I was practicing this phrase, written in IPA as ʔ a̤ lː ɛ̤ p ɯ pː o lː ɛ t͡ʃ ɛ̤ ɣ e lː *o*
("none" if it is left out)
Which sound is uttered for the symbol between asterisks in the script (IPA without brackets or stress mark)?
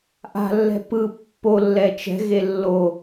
o